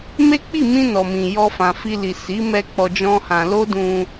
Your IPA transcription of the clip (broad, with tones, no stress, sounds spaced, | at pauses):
m e˦ k͡p i˦˨ m ĩ˧ n ɔ˨ m ĩ˨ j ɔ˧ f ã˨ f i˧ l i˨ s i˨˦ m ɛ˧ k͡p ɔ˧ d͡ʒ ɔ̃˦ h ã˧ l o˦ d ũ˧